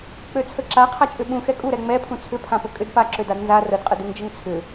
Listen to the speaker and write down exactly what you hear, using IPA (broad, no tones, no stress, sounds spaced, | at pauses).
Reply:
k͡p ø t͡sʰ ə ǁ a qʰ a t͡ʃʼ ʏ ɓ ũ x ɛ kʼ u ɾ ɛ ŋ͡m ɛ pʰ ũ t͡sʰ ʏ pʰ ã p ə kʼ ʏ d p a ǁ ø d a d n z a r ə d qʼ ə d u ŋ d͡ʒ ə ŋ t͡sʰ ʏ